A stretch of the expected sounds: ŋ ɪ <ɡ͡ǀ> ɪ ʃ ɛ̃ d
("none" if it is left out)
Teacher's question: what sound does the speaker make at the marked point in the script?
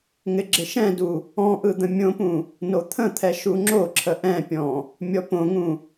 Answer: ɡ͡ǁ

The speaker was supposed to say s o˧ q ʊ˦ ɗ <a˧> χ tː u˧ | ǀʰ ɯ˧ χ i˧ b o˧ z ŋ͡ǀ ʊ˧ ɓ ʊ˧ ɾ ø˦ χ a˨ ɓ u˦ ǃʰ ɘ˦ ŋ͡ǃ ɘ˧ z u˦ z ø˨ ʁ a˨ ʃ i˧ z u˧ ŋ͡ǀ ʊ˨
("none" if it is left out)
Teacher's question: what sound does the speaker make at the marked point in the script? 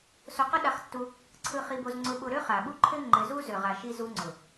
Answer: a˧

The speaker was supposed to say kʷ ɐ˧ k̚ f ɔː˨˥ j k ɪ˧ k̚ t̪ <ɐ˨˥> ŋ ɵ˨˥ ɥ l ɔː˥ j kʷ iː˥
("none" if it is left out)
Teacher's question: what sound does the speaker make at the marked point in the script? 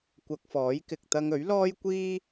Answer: ɐ˧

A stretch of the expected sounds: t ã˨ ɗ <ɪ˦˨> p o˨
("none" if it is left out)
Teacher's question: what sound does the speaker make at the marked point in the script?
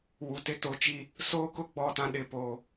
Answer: ɪ˨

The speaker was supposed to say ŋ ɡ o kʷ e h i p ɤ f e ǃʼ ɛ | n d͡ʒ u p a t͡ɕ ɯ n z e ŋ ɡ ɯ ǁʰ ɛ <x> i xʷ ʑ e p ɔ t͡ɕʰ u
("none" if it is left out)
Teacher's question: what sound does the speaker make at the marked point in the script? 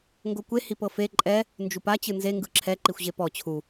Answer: ǃ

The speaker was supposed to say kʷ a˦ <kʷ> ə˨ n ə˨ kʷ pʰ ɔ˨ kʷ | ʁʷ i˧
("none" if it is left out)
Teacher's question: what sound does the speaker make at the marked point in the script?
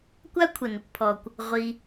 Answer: kʷʰ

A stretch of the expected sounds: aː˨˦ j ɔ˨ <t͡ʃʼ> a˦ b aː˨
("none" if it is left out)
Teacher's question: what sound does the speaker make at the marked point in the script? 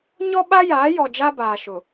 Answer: d͡ʒ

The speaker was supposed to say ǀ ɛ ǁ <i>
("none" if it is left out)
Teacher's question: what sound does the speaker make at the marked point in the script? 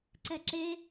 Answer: e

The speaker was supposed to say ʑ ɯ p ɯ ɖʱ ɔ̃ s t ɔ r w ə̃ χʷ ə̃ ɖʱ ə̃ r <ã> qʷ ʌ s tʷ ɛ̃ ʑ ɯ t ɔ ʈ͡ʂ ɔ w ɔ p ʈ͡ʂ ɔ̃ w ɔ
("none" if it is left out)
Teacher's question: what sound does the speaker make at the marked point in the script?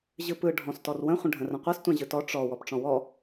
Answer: ə̃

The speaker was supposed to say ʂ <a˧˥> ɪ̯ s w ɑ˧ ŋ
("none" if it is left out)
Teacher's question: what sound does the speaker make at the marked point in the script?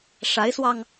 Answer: a˧˥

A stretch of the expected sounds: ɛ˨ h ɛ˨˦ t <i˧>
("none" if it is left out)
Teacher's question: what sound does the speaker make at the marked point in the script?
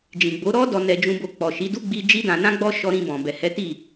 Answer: i˦˨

